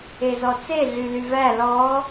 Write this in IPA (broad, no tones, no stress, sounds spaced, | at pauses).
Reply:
e z ɔ t͡s e ɮ y l y v æ l ɔ